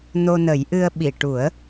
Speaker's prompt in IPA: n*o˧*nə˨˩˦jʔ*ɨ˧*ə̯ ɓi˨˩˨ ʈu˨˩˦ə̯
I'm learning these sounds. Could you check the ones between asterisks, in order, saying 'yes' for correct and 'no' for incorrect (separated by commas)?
yes, yes